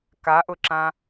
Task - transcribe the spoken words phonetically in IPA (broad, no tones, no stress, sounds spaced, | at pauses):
k a ʔ ʊ ǁ ã